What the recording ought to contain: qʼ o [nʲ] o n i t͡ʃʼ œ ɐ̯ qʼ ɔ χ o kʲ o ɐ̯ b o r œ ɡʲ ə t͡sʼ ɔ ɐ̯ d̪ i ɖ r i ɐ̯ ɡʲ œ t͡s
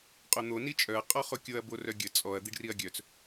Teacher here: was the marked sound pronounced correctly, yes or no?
no